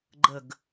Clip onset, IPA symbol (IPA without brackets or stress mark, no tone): ɡ͡ǃ